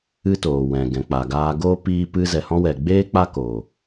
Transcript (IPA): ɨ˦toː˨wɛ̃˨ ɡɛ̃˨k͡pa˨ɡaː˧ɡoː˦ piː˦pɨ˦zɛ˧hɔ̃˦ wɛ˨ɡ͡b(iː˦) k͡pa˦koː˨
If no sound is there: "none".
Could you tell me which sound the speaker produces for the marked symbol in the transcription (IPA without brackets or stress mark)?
eː˦